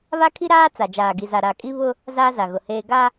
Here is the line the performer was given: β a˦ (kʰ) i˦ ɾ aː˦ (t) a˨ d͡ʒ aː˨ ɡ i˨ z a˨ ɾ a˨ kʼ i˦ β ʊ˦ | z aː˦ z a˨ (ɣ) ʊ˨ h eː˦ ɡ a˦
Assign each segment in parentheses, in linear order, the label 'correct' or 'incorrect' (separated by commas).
correct, incorrect, correct